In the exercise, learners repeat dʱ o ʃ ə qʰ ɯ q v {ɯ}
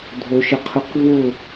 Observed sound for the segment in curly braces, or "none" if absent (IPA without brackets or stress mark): ʊ